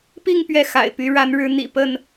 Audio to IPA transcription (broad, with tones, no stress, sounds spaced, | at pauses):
p i˥˨ ŋ p ɥ ɛ˥˨ x a̰˨˩ ɪ̯ p y˨˦ ɻ a˨˦ n ɻ ɻ̩˨˦ n̪ ḭ˨˩ p ə˥˨ n